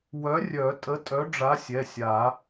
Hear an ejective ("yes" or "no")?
yes